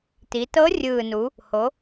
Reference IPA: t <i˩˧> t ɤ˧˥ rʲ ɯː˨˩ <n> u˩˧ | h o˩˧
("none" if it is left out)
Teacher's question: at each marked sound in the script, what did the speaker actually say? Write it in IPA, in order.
i˩˧, n

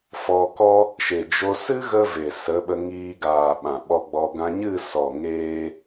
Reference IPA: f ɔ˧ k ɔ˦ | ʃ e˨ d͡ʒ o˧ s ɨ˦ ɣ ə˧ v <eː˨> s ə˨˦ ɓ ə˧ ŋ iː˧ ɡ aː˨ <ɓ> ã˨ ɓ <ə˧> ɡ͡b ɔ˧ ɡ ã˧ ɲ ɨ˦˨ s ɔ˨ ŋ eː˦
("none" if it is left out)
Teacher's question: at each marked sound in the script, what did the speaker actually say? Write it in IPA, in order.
e˨, ɓ, ɔ˧

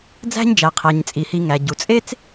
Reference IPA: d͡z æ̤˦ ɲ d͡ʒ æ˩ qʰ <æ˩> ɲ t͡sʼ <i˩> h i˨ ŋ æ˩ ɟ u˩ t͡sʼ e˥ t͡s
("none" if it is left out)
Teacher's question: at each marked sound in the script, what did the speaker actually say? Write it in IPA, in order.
æ˩, i˩

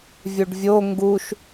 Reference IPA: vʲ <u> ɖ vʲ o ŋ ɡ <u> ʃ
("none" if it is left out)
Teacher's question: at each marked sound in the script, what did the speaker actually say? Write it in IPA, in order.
u, u

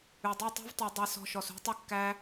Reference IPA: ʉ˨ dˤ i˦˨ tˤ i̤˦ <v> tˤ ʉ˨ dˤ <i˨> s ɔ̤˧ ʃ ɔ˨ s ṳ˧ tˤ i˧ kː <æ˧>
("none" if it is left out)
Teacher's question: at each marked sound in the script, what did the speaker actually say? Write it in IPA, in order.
v, i˨, æ˧

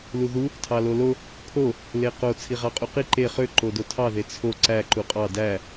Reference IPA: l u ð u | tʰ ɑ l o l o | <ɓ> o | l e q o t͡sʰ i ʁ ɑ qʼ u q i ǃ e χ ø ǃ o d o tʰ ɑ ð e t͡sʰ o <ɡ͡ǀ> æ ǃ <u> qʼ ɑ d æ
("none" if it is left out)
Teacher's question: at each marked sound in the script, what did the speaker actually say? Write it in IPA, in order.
pʰ, ǀ, u

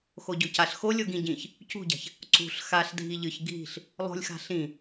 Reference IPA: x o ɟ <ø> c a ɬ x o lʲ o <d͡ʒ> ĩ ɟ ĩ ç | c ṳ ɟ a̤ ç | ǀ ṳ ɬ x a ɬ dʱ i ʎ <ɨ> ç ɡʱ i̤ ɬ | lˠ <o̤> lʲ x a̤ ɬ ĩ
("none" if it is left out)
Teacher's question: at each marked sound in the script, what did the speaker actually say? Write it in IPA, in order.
ɵ, ɡ, ɨ, o̤

